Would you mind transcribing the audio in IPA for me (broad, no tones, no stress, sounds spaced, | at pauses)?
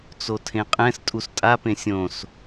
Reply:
t͡s o tʰ ẽ qʼ ɛ̃ s tʼ u s tʼ a p ẽ sʲ õ s